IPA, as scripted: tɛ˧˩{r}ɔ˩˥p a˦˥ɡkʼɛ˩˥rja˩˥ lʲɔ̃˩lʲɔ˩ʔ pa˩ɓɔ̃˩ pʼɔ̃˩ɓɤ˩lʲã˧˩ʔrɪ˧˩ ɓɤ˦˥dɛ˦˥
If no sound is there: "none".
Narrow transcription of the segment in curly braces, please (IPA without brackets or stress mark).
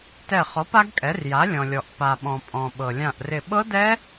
χ